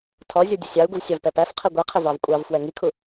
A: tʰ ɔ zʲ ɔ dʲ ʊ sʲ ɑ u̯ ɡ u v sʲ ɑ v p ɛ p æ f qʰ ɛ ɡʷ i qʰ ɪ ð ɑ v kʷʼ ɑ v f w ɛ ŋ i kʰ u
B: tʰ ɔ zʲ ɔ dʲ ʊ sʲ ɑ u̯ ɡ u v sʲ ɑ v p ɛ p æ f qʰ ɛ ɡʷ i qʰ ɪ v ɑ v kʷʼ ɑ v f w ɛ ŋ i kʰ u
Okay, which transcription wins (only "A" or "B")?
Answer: B